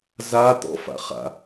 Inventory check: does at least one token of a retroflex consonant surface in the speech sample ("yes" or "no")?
no